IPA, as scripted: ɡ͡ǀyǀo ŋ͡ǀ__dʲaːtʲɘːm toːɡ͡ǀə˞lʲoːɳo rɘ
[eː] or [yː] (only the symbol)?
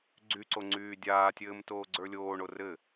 yː